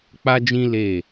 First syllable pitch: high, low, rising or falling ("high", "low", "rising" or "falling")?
high